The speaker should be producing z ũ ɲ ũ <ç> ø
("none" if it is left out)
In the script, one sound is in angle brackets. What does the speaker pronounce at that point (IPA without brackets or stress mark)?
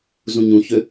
ç